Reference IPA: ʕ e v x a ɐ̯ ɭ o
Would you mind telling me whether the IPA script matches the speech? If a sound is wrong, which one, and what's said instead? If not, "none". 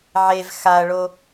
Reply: none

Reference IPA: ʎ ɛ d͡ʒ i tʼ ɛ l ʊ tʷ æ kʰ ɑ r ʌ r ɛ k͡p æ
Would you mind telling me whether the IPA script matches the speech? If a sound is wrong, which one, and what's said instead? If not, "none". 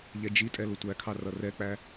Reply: none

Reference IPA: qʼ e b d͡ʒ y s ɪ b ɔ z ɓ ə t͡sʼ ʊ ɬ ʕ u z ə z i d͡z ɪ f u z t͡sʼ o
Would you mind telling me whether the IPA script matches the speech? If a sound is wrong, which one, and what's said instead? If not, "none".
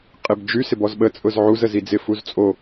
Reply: ɬ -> z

